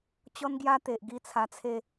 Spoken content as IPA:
t͡ɕɔ˦nɡja˦t̪e˨ʔ ɡi˦t͡sʰa˧t͡sʰe˥˧

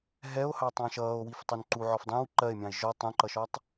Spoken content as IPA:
ɦɛo̯hɑtˤɑ̃ ʃʌːo̯wiftˤʊn ǃuʕɔf dˤɛ̃w ǃɜe̯mʲɑ̃e̯ ʒɔ tˤũǃʌʃɒtˤ

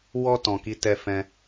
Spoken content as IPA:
wɔ˧ tɔ̃˨ki˨˦tɛ˧fɛ̃˧

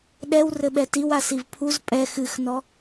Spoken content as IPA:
ɗɛwrɘɓɛ tiwasiv pʰuz pʼɛ xɨxnɔ

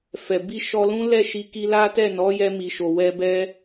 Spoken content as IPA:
fɛ˨bi˧ ʃɔ˧lũ˦ lɛ˦˨ʃi˧ ki˧la˦tɛ˦˨nɔ˨˦ jɛ˧mi˨ʃo˨wɛ˧ bɛ˧

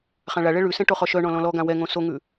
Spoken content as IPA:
χãɭaɭɛ ɭʉsɛ̃ ʈoχɔʃœɳɔ̃ lɔ̃lɔɡã wɛŋõ soŋʉ

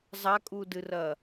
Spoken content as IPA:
zˤakʼudɨrɐ

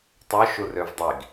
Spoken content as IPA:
tˤø ʃurøvdˤiɡ

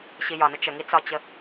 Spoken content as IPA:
ɕijɒnə t͡ʃəŋi t͡sɒt͡ɕə

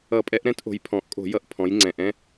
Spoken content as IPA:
ʌ˧˩˧pʼɛ˧˥ʔ ɾɛ̃˧˥tʔo̤˩˧jpʰɔ̃˨˩ʔkʼo̤˧˩˧ jʌ˧˩˧ʔ pʰɔ̃˩˧j ŋ͡ǀɛ̃˨˩ʔɛ̃˧˥˧

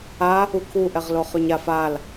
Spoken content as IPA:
a | ukʰu ʔɛʁloχøɲaf al

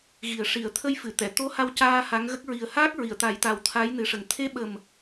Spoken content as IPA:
ɣi˨˩ə̯ ʂi˨˩˨ə̯ t̪ʰə˧jfɨ˨˩˨t̪ɛ˨˩˨ t̪o˧˥ ha˧wcaː˧ ha˧˥ŋɣə˦˥k̚ ɹi˨˩ə̯haː˦˥k̚ ɹi˨˩˨ə̯t̪a˨˩˦jt̪a˨˩w t̪ʰa˧˥jnɨ˨˩ʂə˨˩ŋ t̪ʰe˧˥ɓə˨˩m

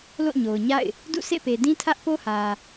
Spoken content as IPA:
lo̰˦˨ɲo˨ʊ̯ɲa̰˦˨ɪ̯ | dṵ˦˨sḛ˦˨pe˨ dĩ˦tʰä˦ʔpo˦hä˨

